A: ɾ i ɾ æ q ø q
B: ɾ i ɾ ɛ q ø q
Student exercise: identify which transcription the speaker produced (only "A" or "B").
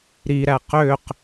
A